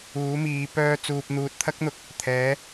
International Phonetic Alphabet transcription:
uː˨˥ m iː˨˧ p œː˧ t͡s uː˨ p̚ n̪ uː˨ t̚ t̪ʰ ɐ˥ k̚ n̪ ʊ˨˥ k̚ | t̪ʰ ɛː˨˥

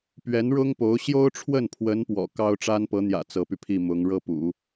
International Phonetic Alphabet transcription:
p ɥ ɛ˧˥ n ɻ ʊ˥ ŋ p o˧˥ ʊ̯ ɕ j o˥ ʊ̯ ʈ͡ʂʰ w ə˥˩ n pʰ w ə˧˥ n p w ɔ̰˨˩ k ɑ˥ ʊ̯ ʈ͡ʂ a˥ n p ɤ˧˥ n̪ j ä̰˨˩ t͡s ɤ˧˥ p y˧ pʰ i˥˩ m ʊ˧˥ ŋ ɻ ɤ˥ p ṵ˨˩˦

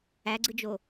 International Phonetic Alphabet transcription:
æ ɡ͡ǀ ɯ d͡ʒ o

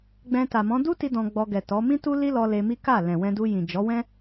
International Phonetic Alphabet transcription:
ɡ͡b ɛ̃˧ t a˨ m ɔ̃˨˦ d u˦ t i˧ d ɔ̃˧ ɡ͡b ɔ˧ ɡ ɛ˨ t ɔ˨˦ m ĩ˦ t u˦ l i˦ l ɔ˧ l e˧ m i˦ k a˦˨ l ɛ̃˨ w ɛ̃˧ d u˧ j ĩ˨ d͡ʒ ɔ˨˦ w ɛ̃˦

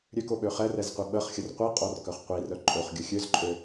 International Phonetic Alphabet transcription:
ɾʲ ø k o ɓ ø χ ɛ r ɛ z qʷ i ɓ ə χ xʲ ə r qʷ i qʼ ɔ r k œ χ qʷ i r œ ǃʼ o χ ɡʲ ə xʲ ø z ǃʼ ø

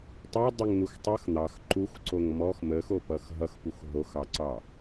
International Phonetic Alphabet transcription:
tˤ ɑ dˤ ʌ ŋ n̪ u x tˤ ʌ x n̪ ɑ x ǃ u x ǀ o ŋ m ɔ x m ə x o p ʌ x ɦ ʌ x p u x ɦ o x ɑ ǀ ɑ

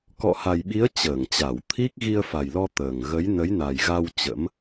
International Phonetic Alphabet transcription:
k ɔ̰˧˨ h a˨˩ j ɓ i˨˦ ə̯ t͡ɕ əː˧˩ ŋ t͡ɕ a˧˩ w t̪ʰ i˦˥ k̚ ɣ i˧ ə̯ f a˨˩ j l ɔ˧ t̪ əː˨˩ ŋ ɣ ə˨˦ j n ə˨˦ j n a˨˩ j ɣ a˧ w t͡ɕ ə̰˧˥ m

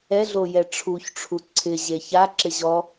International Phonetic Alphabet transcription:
ɛ ɮ o j ɛ ʈ͡ʂʰ u ç ʈ͡ʂʰ u ǀʰ ɪ ʑ e ç a ǁ ɪ ʑ ɔ

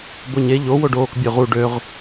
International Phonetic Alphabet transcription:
b o ɲ e ʎ o w o ɖ oː k bʲ ø ʁ u ɖ ø ʁ

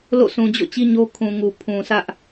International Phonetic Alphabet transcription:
l o̰˦˨ s ũ˨ d͡ʑ o̰˦˨ t͡ɕ i˦ ɲ o˦ kʰ ũ˨ ŋ u˨ pʰ ũ˨ sʰ ä˦ ʔ

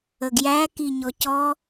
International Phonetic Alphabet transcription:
ə ɡ j æ k i ɲ ɔ c ɔ

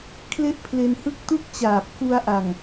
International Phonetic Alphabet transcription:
kʰ l e˥˩ ʔ pʰ l e˧ n h ɯ˥˩ k̚ t u˥˩ k̚ t͡ɕ aː˨˩ p̚ k u˧ a̯ ʔ a˨˩ ŋ

